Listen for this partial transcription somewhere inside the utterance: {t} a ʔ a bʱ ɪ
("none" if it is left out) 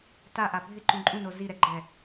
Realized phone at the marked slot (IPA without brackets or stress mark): t